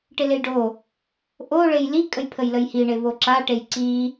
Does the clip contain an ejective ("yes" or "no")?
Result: yes